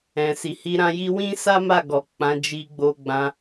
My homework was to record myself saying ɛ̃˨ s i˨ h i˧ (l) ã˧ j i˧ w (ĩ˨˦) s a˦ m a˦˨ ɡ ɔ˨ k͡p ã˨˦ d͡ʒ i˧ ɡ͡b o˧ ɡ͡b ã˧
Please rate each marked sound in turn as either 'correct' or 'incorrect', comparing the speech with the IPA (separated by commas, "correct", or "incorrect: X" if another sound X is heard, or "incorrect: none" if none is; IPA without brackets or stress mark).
incorrect: ɾ, incorrect: ĩ˦